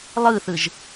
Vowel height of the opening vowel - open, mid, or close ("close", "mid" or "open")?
close